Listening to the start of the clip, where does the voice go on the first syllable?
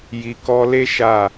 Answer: low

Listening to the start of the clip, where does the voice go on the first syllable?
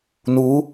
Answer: rising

